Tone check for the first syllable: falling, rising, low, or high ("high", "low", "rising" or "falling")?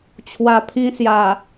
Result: low